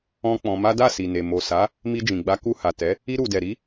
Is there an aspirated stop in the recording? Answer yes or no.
no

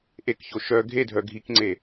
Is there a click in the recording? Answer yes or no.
yes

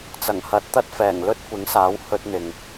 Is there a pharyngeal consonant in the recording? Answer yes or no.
no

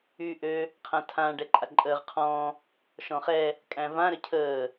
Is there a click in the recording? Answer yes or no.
yes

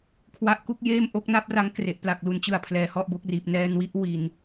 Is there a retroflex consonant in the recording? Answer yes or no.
no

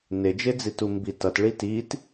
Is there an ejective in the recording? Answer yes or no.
no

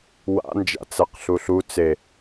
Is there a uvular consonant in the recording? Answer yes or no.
yes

